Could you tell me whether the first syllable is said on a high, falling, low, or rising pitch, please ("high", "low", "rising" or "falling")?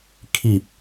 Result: low